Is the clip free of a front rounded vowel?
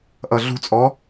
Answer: yes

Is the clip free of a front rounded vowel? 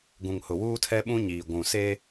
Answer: yes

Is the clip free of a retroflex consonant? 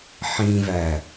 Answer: yes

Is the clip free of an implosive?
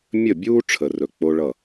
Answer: yes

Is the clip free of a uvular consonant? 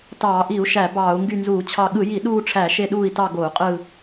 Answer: no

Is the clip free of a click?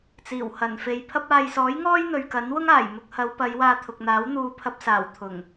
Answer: yes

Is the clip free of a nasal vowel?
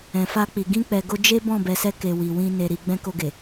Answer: no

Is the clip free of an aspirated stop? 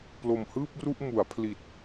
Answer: no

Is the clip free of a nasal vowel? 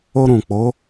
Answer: no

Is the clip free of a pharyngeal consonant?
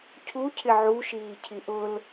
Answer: no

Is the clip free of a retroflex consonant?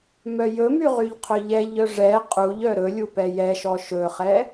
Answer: no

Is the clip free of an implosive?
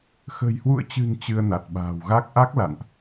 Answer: no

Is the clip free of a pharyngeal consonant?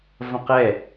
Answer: yes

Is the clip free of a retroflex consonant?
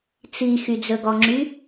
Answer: yes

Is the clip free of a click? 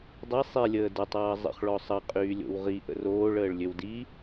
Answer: yes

